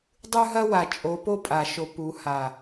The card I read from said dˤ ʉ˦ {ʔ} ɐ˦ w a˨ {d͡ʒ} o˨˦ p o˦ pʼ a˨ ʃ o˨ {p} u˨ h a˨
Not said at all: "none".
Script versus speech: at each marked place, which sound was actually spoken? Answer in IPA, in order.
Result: ɦ, t͡ʃʼ, p

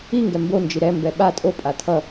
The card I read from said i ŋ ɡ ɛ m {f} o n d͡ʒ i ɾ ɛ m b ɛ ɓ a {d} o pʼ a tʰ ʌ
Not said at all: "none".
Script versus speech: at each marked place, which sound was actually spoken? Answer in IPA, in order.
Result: b, tʼ

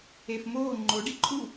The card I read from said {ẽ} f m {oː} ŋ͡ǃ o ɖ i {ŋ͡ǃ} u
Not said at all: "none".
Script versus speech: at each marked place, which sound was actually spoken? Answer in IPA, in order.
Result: e, oː, ǃʼ

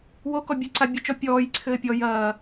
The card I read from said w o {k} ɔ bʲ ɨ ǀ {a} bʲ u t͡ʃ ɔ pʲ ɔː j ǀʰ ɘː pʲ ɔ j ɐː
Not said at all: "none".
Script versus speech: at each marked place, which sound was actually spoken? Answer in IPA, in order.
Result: k, a

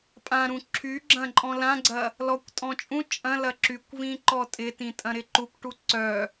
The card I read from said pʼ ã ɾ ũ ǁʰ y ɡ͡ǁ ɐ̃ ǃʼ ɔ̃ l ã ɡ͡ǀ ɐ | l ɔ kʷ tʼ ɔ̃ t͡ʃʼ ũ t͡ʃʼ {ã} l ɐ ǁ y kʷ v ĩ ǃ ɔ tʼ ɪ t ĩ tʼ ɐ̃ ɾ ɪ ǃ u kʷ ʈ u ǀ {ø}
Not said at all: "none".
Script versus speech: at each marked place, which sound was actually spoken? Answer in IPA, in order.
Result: ɐ̃, œ

